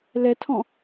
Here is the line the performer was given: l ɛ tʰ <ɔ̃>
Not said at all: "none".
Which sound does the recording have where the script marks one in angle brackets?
ɔ̃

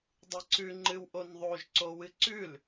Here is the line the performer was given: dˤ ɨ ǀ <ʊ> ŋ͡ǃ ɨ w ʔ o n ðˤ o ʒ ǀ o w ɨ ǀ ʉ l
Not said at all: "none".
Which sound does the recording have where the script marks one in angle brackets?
ʉ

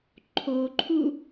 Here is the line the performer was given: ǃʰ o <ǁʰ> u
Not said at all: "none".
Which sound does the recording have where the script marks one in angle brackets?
ǃʰ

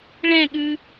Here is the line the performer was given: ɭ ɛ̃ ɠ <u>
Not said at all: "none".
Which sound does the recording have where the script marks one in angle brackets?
ʉ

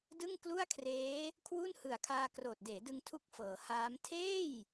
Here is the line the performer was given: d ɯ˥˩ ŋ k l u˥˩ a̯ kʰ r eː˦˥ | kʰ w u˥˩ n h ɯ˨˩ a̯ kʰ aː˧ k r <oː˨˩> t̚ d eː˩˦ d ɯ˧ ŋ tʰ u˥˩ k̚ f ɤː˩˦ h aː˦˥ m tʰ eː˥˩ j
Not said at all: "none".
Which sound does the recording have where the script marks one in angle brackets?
oː˨˩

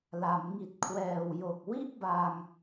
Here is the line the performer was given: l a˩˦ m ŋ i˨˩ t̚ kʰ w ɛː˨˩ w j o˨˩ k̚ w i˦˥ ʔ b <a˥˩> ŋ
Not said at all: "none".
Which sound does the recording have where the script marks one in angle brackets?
a˧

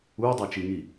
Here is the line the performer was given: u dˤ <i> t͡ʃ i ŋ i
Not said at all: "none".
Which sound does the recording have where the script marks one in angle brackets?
e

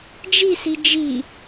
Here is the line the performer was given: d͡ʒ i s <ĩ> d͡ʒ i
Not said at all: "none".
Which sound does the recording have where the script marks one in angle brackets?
i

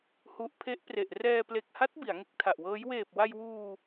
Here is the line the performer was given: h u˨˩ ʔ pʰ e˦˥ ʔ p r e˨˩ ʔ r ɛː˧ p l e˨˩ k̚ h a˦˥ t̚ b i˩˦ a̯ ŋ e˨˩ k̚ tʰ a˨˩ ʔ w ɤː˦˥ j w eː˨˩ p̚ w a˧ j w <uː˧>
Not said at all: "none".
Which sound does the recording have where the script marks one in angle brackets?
uː˧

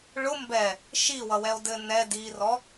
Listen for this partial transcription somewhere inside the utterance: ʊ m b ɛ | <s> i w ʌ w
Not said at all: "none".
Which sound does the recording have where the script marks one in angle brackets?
ʃ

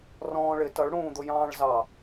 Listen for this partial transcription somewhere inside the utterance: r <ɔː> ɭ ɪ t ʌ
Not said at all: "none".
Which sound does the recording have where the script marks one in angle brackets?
ɔ̃ː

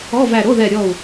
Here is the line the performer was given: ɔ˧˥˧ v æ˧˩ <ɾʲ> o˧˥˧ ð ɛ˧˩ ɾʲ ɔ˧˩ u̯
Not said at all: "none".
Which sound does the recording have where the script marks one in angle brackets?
ɾ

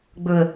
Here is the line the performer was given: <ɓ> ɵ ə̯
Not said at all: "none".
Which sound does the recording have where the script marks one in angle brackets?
ɡ͡b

